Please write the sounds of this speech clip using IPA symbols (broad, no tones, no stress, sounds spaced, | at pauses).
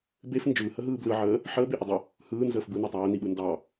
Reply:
b e f n d͡ʒ ɯː h ə ɦ ɯː b l ɯ ʕ əː | ħ əː b e ʔ ə dˤ ə | h ɯː n z əː f b ɯ n e tˤ ɑ j ə n i ɓ ɯ n d ɑ